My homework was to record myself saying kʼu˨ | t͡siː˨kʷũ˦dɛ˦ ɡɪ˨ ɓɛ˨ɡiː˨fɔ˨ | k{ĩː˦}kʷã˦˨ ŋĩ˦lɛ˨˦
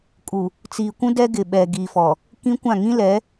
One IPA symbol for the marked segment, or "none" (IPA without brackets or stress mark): ĩ˦